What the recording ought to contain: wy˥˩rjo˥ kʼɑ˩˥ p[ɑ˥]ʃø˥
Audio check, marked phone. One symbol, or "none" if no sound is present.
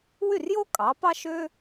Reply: ɑ˥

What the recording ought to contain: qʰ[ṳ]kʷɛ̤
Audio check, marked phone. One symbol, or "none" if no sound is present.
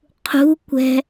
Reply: ṳ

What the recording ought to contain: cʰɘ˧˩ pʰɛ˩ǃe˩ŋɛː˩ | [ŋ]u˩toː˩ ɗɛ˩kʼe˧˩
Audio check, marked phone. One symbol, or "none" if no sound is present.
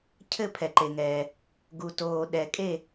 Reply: ɡ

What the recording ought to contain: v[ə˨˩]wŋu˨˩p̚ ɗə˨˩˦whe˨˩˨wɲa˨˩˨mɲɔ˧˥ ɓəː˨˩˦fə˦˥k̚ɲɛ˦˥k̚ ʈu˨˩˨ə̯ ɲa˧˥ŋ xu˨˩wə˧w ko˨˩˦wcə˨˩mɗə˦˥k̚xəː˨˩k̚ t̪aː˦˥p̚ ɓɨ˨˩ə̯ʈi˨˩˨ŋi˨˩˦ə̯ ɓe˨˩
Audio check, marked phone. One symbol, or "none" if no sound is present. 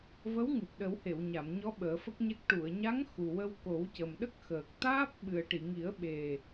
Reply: ə˧˥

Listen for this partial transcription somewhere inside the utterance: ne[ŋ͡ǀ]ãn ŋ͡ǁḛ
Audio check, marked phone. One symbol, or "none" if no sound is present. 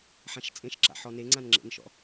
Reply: ŋ͡ǀ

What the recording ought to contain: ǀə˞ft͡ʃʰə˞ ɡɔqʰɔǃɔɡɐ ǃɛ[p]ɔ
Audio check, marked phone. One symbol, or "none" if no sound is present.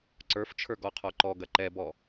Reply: b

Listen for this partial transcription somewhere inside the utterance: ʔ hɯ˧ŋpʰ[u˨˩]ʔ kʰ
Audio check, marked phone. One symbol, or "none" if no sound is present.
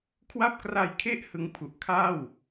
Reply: u˨˩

